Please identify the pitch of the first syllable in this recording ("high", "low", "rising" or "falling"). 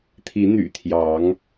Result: rising